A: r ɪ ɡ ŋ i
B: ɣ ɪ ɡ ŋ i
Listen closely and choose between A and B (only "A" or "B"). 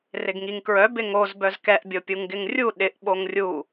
A